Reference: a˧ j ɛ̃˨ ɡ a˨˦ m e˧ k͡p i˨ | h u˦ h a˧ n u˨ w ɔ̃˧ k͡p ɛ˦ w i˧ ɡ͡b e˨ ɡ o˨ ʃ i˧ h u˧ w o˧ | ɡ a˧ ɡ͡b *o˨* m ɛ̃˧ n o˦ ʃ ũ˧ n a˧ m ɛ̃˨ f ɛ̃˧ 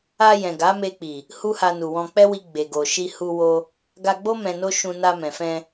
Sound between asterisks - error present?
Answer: yes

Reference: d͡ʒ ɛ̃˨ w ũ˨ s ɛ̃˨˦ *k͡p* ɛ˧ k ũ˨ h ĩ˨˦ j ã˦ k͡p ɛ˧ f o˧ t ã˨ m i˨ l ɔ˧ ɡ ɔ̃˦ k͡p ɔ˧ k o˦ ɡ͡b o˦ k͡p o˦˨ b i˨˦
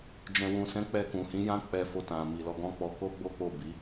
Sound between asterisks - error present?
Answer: no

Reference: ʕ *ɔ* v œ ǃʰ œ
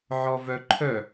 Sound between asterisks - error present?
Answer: no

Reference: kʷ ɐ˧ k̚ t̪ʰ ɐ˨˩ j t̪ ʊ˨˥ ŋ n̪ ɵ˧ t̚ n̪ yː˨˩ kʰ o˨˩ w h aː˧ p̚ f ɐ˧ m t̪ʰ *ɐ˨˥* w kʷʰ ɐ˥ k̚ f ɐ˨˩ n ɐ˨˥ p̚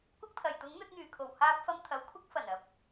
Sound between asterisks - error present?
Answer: no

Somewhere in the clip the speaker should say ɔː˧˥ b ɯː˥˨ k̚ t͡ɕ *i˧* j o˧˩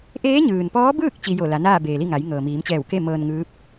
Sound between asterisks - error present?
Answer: no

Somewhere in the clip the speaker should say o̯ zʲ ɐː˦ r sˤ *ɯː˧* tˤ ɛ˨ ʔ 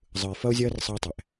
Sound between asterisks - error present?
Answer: no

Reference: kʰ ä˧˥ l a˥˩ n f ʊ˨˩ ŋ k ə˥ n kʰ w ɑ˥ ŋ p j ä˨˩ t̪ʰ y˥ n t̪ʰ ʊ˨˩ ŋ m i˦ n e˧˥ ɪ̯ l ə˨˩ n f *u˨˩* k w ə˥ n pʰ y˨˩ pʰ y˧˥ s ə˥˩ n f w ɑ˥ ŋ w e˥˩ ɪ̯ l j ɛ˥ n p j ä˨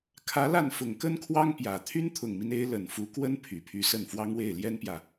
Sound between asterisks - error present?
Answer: yes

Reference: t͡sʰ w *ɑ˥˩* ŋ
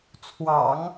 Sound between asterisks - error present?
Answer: yes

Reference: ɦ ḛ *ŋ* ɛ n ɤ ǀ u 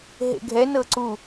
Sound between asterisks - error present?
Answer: yes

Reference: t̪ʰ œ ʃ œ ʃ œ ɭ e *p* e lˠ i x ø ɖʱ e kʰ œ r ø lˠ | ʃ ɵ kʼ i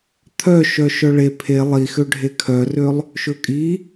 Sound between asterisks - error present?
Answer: yes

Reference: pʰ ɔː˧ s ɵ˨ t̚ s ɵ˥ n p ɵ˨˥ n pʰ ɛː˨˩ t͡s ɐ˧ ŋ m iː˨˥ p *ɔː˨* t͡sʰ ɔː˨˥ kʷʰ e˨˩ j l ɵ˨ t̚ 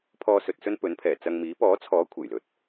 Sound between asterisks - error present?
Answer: yes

